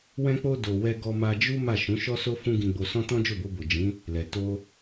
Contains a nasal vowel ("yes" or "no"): yes